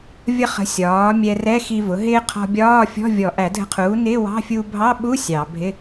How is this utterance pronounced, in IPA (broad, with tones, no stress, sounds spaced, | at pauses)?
vʲ ʌ˧ χ ə̤˩˥ sʲ ɒː˩˥ mʲ ɛ˧ r ɛ˧˥˧ x i˧ v ʊ˩˥ ɦ ɪː˧ qʰ ɔ̤˧ bʲ ɒː˧˥˧ fʲ ɔ̤˧˥˧ vʲ ɔ˨˩˦ ʔ æ˨˩˦ dʱ ə̤˧ qʰ uː˩˥ n ɪː˧˥˧ w ɑ̤˧˥˧ fʲ uː˧ bʱ ɑ˧˥˧ ɓ u˧˥˧ sʲ ɑ˨˩˦ bʱ ɪ˧˥˧